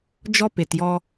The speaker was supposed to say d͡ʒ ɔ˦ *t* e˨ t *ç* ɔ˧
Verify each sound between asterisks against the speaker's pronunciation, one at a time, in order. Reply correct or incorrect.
incorrect, incorrect

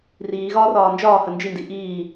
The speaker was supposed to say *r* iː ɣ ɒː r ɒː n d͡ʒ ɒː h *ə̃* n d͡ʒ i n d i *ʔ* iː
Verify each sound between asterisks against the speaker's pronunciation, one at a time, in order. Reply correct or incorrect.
correct, incorrect, correct

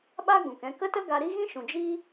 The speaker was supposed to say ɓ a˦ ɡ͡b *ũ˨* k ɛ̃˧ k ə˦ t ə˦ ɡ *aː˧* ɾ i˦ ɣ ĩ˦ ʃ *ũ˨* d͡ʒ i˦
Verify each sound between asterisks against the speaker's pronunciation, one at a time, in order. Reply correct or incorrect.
correct, incorrect, correct

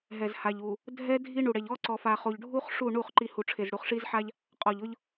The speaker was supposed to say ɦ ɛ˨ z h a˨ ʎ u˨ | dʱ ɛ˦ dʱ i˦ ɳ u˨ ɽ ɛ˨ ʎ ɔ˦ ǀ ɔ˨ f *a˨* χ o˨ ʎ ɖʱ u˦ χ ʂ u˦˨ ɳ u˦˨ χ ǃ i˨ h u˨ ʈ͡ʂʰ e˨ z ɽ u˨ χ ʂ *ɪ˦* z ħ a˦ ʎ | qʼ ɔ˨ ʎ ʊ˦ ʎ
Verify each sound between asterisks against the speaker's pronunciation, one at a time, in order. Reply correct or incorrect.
correct, incorrect

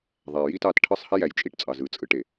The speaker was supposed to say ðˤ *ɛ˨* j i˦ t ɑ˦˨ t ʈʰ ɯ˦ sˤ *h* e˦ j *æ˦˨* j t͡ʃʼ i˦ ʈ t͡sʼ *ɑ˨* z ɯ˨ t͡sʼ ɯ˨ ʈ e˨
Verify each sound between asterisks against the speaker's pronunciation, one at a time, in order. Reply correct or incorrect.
incorrect, correct, incorrect, correct

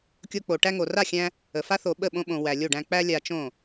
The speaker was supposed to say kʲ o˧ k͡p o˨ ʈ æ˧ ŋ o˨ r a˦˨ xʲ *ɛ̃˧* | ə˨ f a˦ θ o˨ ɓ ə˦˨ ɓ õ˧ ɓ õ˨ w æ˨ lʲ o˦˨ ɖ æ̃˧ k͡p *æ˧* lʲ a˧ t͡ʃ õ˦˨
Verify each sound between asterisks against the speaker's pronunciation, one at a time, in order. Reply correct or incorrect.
incorrect, correct

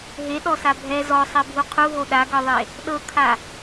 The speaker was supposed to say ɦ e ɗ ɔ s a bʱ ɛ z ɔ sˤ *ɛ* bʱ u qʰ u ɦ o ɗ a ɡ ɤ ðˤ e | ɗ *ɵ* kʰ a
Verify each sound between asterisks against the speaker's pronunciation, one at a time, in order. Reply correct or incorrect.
correct, incorrect

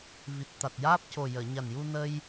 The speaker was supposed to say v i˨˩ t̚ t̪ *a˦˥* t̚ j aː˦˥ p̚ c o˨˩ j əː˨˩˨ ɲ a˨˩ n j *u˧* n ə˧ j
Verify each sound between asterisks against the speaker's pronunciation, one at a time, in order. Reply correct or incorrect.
incorrect, correct

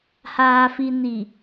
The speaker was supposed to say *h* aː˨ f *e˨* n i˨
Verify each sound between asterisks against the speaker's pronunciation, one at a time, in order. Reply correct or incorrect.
correct, incorrect

